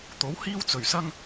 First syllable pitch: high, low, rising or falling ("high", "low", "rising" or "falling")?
rising